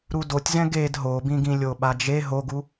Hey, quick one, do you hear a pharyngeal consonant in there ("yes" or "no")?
no